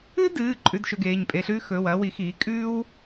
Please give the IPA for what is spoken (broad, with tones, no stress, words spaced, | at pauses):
ɨ˥dɨː˩˧˩ ǃʼʉ˧˥˧dʃɵ˧ɡeː˩˧˩ɲ pʼe˧ɬʉː˥ xɵː˩˧˩wɐː˥ wi˩˥xiː˩˥ kʼʉː˥w